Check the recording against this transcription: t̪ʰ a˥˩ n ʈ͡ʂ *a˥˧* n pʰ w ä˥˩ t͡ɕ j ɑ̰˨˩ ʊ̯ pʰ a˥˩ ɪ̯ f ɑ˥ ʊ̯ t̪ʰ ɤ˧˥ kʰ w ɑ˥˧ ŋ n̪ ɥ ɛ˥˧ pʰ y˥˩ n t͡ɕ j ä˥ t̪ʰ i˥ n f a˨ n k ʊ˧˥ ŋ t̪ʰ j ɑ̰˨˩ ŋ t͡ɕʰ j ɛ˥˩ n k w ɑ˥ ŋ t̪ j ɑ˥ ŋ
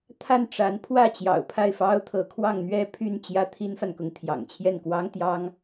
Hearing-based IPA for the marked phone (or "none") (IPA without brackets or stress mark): a˧˥